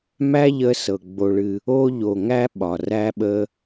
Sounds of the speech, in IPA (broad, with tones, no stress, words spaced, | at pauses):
mæ˥ʎə˧sɤ˩ ɡ͡bo˩ɭɨ˩ | o˧ʎo˩ ŋæ˧ ɓɒ˩ræ˧ɓə˧